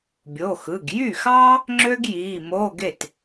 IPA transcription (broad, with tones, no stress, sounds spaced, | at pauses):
bʲ o˩˧˩ x ɯ˩˧˩ ɡ j y˥˩ x ɑ˥ | ŋ͡ǁ ø˥ ɡ j i˩˧˩ m o˧˥˧ ɡ e˥˩ t